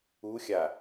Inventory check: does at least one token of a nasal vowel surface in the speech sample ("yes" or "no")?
no